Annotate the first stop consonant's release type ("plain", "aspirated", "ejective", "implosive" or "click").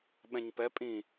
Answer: implosive